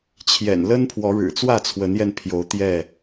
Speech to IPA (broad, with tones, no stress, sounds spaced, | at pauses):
t͡ɕʰ j ɛ̰˨˩ n l ə˦ n pʰ w ɔ˨˦ ɻ ɻ̩˨˩ t͡s w ä˥˨ t͡sʰ w ə˨˦ n j ɛ˧ n pʰ j o˨˦ ʊ̯ t̪ j ɛ˥˨